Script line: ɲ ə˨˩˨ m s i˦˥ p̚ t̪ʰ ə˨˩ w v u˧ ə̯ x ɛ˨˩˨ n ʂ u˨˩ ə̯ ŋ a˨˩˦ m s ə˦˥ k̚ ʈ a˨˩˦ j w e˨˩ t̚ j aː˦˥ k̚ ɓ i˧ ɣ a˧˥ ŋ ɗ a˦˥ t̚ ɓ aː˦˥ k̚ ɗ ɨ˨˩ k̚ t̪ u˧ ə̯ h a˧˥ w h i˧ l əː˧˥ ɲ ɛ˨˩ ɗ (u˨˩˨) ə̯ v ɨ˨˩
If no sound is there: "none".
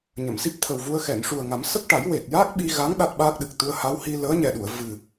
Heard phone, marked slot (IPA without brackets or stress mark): u˨˩˨